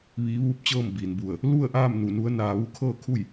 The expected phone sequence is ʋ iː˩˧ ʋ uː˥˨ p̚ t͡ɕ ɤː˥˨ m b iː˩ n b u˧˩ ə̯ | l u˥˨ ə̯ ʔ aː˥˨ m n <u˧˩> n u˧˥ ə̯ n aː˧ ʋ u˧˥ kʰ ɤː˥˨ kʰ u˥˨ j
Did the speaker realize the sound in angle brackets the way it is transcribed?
yes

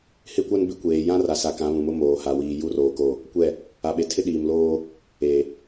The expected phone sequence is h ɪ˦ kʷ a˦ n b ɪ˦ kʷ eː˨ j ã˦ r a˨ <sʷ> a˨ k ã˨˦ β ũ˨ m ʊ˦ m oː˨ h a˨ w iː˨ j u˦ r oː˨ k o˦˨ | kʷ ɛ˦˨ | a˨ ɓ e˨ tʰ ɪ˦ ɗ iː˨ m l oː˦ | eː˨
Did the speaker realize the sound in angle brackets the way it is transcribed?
no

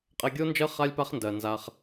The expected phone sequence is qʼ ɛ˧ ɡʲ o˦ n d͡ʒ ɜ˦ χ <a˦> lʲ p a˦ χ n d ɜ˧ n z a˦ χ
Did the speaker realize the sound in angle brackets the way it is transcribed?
yes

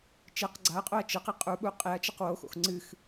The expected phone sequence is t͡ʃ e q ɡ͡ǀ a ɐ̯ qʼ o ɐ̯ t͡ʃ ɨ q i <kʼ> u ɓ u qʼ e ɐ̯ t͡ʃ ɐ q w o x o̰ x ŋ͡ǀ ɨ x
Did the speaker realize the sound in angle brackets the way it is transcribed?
no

